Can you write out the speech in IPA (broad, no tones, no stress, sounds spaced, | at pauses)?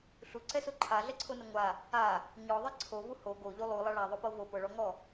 ɬ u ǀ ɛ s o ǃʰ a ɮ ɛ ǀʰ o n ɛ ŋʷ a | a | ɲ ɔ ðˤ ɛ ǀʰ o v u h o ɡ o ʎ u lˠ u lˠ a ɭ a ðˤ o p ɤ v o p ɤ ɭ ɔ ŋ ɔ